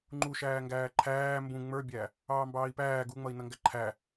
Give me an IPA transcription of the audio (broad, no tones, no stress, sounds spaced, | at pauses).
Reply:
ŋ͡ǃ u ʃ æː ŋ ɡ æː ǃʰ æː m b ũ ŋ͡m ə˞ bʲ æ | ɑː m b ɑː i̯ p æː ɡ u ŋ͡m ʌ i̯ n ʌ ŋ ɡ æ ǃʰ æ